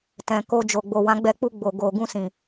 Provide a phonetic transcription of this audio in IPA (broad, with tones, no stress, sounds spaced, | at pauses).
t ɛ̃˨ k o˧ d͡ʒ o˨ ɡ͡b o˨ w ã˨˦ ɡ͡b ɛ˧ k͡p u˧ ɡ͡b o˨ ɡ o˨ ɡ ũ˧ s ĩ˨